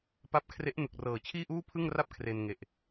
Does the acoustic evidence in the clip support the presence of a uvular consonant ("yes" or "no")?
no